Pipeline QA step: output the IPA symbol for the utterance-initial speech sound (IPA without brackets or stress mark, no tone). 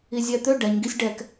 i